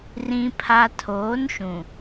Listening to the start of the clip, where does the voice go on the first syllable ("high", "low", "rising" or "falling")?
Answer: low